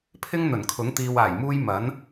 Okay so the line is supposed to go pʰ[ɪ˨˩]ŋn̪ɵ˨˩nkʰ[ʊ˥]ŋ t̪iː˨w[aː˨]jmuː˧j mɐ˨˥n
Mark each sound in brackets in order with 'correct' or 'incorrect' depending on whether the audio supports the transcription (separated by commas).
incorrect, incorrect, incorrect